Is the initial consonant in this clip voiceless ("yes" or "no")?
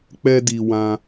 yes